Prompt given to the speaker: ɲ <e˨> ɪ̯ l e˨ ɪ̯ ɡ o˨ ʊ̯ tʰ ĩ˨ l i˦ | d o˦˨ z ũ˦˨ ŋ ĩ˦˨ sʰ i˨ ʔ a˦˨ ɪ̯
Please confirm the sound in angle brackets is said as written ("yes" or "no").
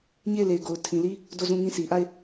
no